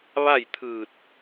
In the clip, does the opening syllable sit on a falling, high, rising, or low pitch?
falling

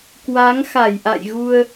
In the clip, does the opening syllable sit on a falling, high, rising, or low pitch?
rising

